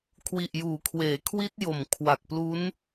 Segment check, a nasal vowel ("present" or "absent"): absent